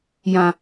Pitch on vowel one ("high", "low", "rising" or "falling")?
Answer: high